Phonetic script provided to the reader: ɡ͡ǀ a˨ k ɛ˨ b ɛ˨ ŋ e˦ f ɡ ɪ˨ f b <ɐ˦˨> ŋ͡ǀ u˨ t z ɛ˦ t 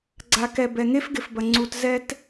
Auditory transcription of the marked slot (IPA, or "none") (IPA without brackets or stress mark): ɐ˨